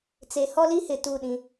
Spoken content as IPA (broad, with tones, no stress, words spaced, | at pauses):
t͡se˨hɔ˦li˦hɪ˨ tu˦˨ɗĩ˦